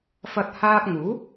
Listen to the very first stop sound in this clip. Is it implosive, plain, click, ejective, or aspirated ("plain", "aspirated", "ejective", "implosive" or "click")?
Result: plain